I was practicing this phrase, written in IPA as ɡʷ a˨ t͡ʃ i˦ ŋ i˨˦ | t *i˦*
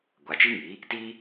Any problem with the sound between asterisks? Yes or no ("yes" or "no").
no